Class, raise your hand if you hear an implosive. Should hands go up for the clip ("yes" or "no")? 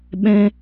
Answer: yes